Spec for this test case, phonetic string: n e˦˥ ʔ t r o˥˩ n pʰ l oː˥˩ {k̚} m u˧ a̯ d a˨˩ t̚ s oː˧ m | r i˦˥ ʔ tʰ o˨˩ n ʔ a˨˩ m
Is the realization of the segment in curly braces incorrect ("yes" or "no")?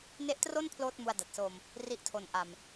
yes